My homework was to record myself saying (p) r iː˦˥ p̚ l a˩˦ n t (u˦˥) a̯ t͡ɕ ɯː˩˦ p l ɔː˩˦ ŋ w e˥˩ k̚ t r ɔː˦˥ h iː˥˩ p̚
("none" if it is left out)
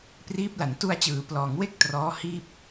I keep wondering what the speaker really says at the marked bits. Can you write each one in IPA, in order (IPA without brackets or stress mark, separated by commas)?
p, u˧